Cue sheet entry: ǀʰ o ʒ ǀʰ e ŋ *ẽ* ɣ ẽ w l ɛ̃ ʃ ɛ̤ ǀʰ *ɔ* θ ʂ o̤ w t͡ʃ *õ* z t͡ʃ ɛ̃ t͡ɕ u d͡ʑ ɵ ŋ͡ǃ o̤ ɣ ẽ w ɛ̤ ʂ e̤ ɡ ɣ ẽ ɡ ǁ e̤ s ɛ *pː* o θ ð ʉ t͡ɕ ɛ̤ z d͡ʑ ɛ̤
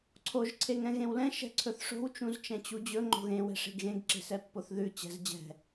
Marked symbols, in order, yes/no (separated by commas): no, no, no, yes